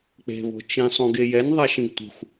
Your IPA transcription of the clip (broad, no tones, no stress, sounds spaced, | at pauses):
k͡p e̤ β o̤ t͡ʃ ĩ sˤ ũ ɡ e j ɛ n ðˤ ɛ ʃ ĩ ɡ tʷ i̤ xʷ